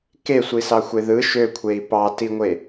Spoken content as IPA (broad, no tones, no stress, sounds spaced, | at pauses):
k e sʷ i s ɑ xʷ e ð ɯ ʃ ø kʷʰ e i̯ p ɑ t i ŋʷ e